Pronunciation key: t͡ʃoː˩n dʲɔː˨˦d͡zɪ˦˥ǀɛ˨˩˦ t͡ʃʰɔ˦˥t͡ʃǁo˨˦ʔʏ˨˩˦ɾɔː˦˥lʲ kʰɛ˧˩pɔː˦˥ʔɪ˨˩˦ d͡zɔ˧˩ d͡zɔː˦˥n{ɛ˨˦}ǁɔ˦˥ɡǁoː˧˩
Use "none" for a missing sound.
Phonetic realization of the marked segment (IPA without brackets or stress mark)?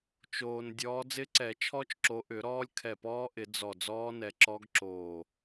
ɛ˨˦